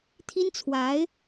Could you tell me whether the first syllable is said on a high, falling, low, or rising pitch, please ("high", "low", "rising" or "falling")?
high